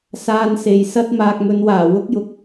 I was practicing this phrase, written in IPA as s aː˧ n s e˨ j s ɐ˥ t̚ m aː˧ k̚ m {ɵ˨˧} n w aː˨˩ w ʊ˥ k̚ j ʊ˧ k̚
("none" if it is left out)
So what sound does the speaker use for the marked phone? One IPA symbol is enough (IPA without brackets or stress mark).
ɵ˨˧